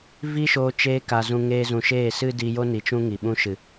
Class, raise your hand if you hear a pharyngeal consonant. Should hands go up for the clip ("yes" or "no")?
no